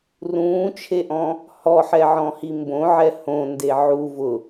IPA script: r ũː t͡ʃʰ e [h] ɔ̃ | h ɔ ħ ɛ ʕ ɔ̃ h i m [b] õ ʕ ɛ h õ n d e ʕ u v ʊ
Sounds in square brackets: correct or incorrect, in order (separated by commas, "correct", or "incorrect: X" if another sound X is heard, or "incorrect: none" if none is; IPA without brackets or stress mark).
incorrect: ʔ, correct